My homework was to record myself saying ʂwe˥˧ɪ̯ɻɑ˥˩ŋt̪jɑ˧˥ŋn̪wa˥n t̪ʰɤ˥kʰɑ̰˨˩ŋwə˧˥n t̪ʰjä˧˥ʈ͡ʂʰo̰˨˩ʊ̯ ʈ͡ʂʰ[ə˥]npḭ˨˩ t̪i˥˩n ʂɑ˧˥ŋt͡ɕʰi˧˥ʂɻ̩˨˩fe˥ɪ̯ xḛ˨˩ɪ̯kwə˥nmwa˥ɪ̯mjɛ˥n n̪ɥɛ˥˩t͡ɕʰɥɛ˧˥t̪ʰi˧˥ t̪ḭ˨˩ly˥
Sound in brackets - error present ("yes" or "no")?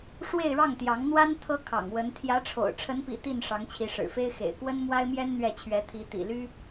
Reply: yes